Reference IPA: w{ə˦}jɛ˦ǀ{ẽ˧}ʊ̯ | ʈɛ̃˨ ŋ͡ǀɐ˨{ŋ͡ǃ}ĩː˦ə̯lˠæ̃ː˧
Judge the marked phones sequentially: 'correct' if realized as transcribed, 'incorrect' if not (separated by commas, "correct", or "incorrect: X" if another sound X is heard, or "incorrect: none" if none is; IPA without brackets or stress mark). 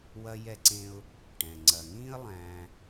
incorrect: ɐ˦, incorrect: ẽ˦, incorrect: ŋ